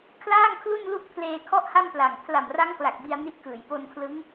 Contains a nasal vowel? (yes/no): no